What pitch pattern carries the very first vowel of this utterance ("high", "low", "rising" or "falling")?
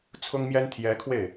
high